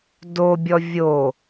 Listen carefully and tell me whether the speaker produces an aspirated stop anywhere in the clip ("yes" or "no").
no